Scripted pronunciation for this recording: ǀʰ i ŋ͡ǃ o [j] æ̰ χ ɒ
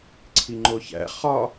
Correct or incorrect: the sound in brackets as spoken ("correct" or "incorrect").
incorrect